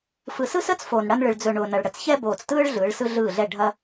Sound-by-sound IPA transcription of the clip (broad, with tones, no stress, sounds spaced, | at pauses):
f ɯ˨ s ɯ˦ s əː˦ t͡s f oː˨ n ɽ ɐ˦ n ɭ ɯ˨ ɭ d͡z ɵ˨ ɳ ʊː˨ n ɐ˨ ɭ ɽ ə˨ t͡s ç ɛ˦ b oː˨ t͡s t ɯː˦ ɭ ɮ ɯː˨˦ ɭ s ɯ˦ ɮ ɯː˦˨ ɮ ɛ˦˨ ɖʱ ɐ˦